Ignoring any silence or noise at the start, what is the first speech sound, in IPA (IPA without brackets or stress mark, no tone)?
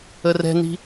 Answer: ə